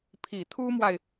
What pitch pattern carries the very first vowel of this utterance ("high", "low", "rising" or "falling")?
low